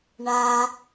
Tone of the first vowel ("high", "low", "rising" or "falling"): low